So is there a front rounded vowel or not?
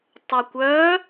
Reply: yes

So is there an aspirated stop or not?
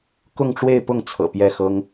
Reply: yes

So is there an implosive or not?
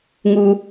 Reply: no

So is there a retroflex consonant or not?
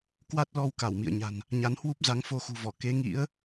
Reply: no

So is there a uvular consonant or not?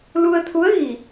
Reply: no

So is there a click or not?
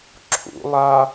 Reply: yes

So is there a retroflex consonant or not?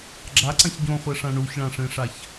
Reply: yes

